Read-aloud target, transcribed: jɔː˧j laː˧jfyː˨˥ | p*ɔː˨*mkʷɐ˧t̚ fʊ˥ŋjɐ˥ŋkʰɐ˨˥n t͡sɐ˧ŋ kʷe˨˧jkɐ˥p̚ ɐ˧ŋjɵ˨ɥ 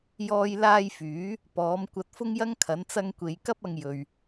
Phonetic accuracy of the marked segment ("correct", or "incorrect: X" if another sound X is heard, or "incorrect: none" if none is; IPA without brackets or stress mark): incorrect: ɔː˨˥